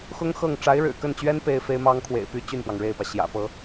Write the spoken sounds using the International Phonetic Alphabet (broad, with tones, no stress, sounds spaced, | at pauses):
x ʊ˥ ŋ x ɤ˥˩ ŋ ʈ͡ʂ a˧˥ ɪ̯ ɻ ɻ̩˨˩ k ə˥˩ n t͡ɕ ɥ ɛ˥ n p e˥ ɪ̯ f e˥ ɪ̯ m ɑ˥ ŋ kʰ w ḛ˨˩ ɪ̯ p y˥ t͡ɕ y˥˩ n p w ɑ˩ ŋ ɻ e˥˩ ɪ̯ p ä˩ ɕ j ä̰˨˩ p ɤ˥